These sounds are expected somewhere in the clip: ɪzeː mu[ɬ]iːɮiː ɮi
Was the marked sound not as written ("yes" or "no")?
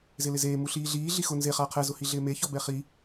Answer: no